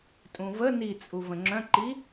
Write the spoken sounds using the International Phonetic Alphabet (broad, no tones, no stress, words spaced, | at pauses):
tʼũvə nit͡sʼu və̃ŋ͡ǁœ̃ǃi